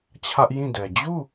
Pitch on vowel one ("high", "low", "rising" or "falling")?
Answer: high